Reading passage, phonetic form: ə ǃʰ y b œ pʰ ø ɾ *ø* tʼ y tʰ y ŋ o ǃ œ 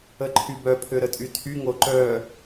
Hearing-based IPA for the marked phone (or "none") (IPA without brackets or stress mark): ə